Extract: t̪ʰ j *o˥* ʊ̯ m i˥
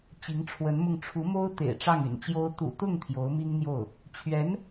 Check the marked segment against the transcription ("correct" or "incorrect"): incorrect